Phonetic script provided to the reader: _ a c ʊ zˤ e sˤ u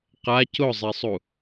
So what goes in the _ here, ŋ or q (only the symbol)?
q